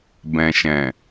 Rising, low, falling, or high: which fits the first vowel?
low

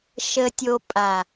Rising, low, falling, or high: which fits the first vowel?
low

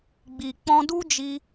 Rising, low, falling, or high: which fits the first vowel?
low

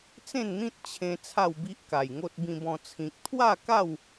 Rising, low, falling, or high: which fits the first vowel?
falling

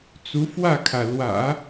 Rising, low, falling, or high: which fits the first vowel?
rising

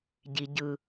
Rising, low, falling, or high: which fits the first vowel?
low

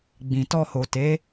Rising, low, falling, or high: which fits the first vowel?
low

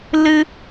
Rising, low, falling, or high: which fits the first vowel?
high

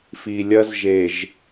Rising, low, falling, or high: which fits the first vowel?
low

